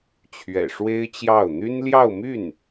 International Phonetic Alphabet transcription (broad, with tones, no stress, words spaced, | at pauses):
t͡ɕʰɥɛ̰˨˩ʂwe˥ɪ̯t͡ɕjɑ˥˩ʊ̯ n̪y˥nljɑ˥˧ʊ̯my˥˩n